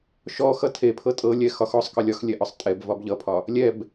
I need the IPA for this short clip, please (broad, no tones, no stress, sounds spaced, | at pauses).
ʃ ɔ x ʌ tʰ e pʰ ɤ tʼ ɤ lʲ ɛ x ɒ x ɔ sˤ k ɤ lʲ ɒ x lʲ ɛ ʔ ɒ sˤ tʼ ɛ b v ɒ b ʎ ʌ pʰ ɒ | lʲ ɛ b